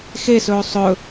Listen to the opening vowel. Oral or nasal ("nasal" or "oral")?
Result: oral